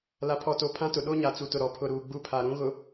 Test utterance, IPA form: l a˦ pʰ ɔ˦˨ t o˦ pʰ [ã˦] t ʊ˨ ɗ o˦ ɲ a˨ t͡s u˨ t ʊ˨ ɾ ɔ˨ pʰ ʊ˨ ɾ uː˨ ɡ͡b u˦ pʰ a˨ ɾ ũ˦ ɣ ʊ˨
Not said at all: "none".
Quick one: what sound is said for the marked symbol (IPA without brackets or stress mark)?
ã˦